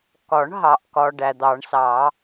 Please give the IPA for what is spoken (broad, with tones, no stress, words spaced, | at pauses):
kɒ˨˩˦ɳɦɑ˨ʔkɒ˨ ɖæ˨d̪ɑ˨˩˦ɳsɑ˨˩˦